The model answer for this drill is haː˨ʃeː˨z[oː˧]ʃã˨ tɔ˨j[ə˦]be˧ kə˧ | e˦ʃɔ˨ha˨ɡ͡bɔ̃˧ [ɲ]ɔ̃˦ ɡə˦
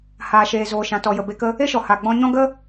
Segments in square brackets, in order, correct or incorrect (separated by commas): incorrect, incorrect, correct